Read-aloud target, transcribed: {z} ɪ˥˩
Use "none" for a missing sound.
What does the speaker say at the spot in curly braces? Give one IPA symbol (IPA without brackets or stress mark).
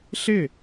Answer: ɬ